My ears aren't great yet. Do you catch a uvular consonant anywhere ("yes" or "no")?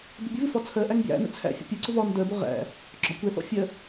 yes